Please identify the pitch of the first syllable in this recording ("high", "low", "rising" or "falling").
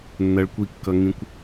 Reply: low